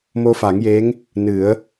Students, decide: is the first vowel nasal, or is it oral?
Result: oral